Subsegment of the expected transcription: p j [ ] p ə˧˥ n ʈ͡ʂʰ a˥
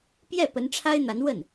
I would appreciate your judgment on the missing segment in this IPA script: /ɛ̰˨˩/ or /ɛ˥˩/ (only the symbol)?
ɛ˥˩